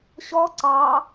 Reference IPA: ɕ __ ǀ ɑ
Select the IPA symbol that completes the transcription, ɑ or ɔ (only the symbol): ɔ